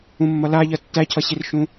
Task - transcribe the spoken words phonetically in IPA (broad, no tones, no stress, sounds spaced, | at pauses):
ũ mː ʌ l a ʎ ɜ tː æ cʰ ʌ ɕ i r ʃ ũ